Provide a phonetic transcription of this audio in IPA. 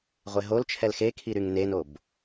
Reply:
ʁʷ e ɦ o l t͡ʃʰ ɛ l x e kʰ i ɾ y ŋ n e n o b

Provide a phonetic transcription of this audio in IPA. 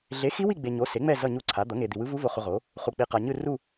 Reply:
ɮ e˩˥ x i˧˥ w i˦˨ ɡ͡b e˨ ɲ o˩˥ s e˩˥ ŋ͡m ɛ˦˨ z ʌ˦˨ ɲ u˦˨ ǀʰ a˩˥ d̪ ʌ˩˥ ŋ e˨ d̪ i˨ w ɯ˧˥ v u˧˥ v o˨ χ u˨ ʁ o˩˥ | χ u˨ k͡p i˨ q a˨ ɲ ɯ˦˨ r u˦˨

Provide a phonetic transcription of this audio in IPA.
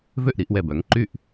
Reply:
v ø˥˩ ʔ ɾ i˩˧ ʔ w ɛ˧˩ b œ˩˧ ŋ ǃ y˥˩ ʔ

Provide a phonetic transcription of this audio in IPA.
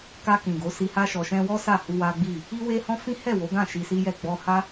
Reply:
k a˧ k ĩ˨ ɡ o˨˦ s i˧ h a˧ ʃ ɔ˨ ʃ ɛ̃˧ w ɔ˦ s a˦˨ h u˧ w a˦ ɡ͡b i˦˨ | i˦ w e˦ h ɔ̃˦ f ĩ˦ h ɛ˦˨ w o˨˦ ɡ ã˦˨ ʃ i˧ s i˦ j ɛ˦˨ ɡ͡b ɔ˧ h a˦

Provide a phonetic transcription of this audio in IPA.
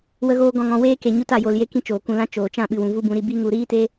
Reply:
w ə˧ ɣ oː˧ ɡ ɔ̃˨ ŋ ɔ̃˨ w eː˧ k e˨ ɲ u˧ t a˨ j o˨ l j e˧ k ĩ˦ t͡ʃ oː˨ k ũ˨ l ã˧ t͡ʃ oː˨ t͡ʃ ã˦˨ ɓ ɨ˨ w ũ˨ v u˦ b ũ˨˦ ɾ i˧ b i˦ ŋ u˧ ɾ iː˦ t e˦

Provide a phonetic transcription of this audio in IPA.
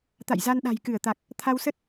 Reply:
t̪ a̰˧˨ j z a˧ n ɗ a̤˨˩ j k ɨ˧˩ ə̯ t̪ a˨˩ k̚ | t̪ʰ a˧ w s ə˦˥ t̚

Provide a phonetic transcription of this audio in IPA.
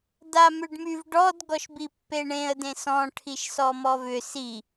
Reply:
d a m ʏ ɖ m y v ɖ ɔ d ɡ ɔ ʃ b i pː e ɳ ẽ ə̯ d ẽ s ɔ̃ ʈʰ i ʃ s ɔ m ɔ v ʏ s i

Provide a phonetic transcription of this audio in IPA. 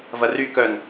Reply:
v ɐ r y k œ n

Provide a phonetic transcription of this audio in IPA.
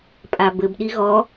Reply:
pʼ a b ɘ b ɗ i ɣ ɔ

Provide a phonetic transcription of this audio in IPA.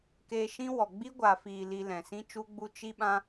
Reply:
k eː˧ ʃ ĩ˦ w ɔ˨ ɡ͡b i˦ ɡʷ a˨ f iː˨ l i˧ l ɛ̃˨ s ĩ˦ t͡ʃ u˦ ɡ͡b u˦ t͡ʃ i˦ ɓ ã˦

